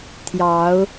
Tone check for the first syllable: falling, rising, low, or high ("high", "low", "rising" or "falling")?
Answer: rising